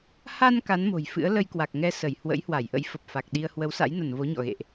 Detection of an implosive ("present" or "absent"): present